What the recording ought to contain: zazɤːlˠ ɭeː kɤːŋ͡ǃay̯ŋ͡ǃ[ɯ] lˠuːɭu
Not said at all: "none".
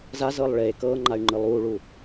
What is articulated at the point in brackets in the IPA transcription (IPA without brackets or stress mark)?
ɯ